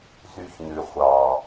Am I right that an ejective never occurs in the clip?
yes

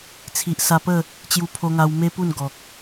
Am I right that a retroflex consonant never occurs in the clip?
yes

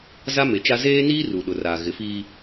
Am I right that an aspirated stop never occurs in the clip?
yes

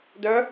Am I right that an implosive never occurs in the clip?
yes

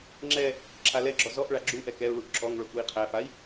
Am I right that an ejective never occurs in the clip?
yes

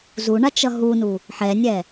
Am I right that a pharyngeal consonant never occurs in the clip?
no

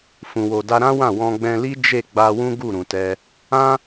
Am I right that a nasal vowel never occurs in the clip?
no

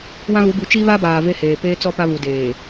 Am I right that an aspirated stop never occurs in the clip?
yes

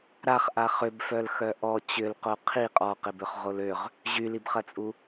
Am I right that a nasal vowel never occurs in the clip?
yes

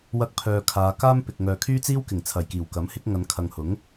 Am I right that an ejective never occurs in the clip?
yes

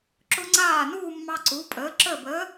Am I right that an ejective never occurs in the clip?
no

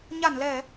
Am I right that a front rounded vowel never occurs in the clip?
yes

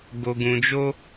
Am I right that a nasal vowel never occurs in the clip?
no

